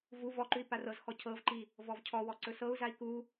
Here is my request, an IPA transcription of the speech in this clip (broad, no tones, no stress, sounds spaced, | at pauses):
v u v ɔ ǃ ʉ i̯ p a r ɤ z x ɔ cʰ ɤ v ǃ i | v ɔ v cʰ ɔ w ɔ ǀ ɵ s ɤ u̯ z a i̯ k u